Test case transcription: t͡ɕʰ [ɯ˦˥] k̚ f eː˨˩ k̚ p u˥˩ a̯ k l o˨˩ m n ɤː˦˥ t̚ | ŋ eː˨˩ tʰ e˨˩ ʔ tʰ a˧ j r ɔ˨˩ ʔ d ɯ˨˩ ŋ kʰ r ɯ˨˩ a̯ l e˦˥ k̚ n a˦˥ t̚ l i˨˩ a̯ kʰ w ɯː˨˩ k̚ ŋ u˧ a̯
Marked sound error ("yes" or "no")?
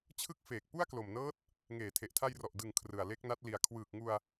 no